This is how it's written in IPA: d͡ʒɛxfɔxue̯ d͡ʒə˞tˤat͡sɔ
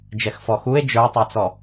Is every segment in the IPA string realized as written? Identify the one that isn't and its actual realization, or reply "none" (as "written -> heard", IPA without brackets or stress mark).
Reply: none